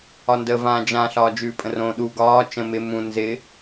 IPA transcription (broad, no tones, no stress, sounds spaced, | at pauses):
ɒ n d ə v ãː d͡ʒ ã ɬ ɒː d͡ʒ ʉː pʼ ə̃ r õ ɗ u ɡ ɒː t͡ʃ ə̃ m ɪ m ũ n z ɪ